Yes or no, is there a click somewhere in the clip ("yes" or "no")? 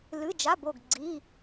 yes